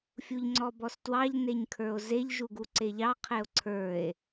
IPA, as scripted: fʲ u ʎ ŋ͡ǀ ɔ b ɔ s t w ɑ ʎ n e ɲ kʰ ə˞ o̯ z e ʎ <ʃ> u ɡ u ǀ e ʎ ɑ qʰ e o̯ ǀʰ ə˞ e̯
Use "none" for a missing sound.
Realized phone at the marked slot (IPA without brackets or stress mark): ʒ